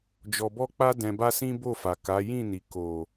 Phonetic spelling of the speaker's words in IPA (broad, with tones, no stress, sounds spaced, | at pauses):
d͡ʒ ɔ˧ b ɔ˦ k͡p a˦ d ɛ̃˧ b a˦ s ĩ˦ b o˦˨ f a˨ k a˨˦ j ĩ˦˨ n i˨ k o˨